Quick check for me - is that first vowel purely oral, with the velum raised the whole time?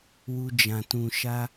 yes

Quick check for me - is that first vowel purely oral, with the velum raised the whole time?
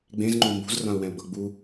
no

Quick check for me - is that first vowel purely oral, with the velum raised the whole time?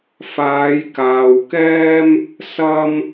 yes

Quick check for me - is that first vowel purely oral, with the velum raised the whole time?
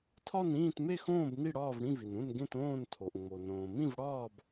yes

